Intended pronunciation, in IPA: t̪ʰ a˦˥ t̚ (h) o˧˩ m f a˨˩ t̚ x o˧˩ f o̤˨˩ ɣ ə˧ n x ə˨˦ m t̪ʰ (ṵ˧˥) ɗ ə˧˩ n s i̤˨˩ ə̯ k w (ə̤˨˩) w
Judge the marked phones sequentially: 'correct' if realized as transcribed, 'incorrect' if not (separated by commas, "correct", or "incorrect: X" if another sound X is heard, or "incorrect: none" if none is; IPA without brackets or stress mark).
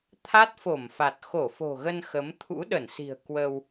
incorrect: f, correct, incorrect: ə˧